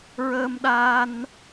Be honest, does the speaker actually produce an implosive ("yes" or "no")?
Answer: yes